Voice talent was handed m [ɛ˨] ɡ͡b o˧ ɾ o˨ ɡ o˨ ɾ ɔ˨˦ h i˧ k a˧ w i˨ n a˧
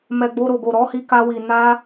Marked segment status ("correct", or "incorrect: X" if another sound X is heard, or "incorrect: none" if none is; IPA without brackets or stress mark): correct